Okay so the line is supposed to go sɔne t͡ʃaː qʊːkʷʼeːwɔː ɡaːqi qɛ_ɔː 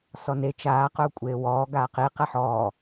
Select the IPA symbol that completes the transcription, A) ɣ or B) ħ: B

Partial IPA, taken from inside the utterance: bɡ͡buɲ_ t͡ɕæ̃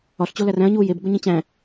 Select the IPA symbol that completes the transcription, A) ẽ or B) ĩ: B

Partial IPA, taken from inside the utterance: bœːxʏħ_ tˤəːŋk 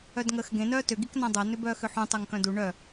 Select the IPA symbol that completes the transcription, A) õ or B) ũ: B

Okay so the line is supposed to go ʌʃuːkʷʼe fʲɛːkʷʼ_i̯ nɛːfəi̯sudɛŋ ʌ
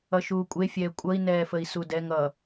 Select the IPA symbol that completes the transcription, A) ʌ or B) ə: A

